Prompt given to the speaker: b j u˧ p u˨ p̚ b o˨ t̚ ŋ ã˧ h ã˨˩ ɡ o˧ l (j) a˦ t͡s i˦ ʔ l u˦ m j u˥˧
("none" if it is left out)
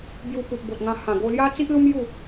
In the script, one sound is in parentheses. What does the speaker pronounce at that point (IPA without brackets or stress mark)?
j